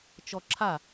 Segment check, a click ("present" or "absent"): present